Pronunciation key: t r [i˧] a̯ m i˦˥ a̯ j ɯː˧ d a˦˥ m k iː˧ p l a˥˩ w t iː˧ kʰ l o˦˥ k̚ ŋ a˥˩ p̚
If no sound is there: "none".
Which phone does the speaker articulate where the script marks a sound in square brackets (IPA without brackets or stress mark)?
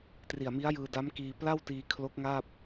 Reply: i˨˩